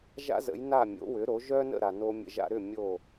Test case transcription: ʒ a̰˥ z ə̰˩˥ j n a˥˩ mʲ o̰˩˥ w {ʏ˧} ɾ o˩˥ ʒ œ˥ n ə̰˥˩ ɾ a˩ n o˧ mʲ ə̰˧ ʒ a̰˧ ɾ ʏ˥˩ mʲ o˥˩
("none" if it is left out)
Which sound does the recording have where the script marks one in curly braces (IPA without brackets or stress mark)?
ʏ˩˥